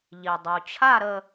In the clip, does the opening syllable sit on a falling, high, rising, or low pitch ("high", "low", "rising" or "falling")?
low